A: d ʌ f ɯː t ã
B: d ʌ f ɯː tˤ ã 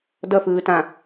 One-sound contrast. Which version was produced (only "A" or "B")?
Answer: A